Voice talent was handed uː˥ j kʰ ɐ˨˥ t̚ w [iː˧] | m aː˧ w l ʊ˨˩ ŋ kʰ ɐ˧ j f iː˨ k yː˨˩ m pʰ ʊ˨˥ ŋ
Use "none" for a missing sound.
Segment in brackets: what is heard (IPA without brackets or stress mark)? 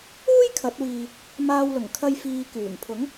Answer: iː˧